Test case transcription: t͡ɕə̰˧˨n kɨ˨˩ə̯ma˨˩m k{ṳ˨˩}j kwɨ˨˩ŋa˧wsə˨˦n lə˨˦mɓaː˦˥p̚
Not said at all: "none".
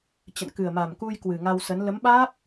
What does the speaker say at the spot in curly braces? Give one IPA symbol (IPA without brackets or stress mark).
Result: u˧